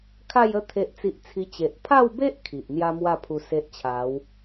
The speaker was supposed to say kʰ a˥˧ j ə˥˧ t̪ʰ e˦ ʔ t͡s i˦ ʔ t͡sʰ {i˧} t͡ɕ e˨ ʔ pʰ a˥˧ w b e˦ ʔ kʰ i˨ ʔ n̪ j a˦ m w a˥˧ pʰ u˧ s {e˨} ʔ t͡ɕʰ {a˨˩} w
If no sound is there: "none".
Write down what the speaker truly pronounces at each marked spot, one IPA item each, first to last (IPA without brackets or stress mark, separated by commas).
i˦, e˦, a˨˦